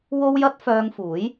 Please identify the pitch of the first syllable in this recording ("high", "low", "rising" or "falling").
high